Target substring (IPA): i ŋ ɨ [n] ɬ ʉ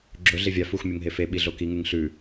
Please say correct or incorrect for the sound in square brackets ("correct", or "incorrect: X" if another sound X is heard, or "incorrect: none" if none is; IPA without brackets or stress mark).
incorrect: ŋ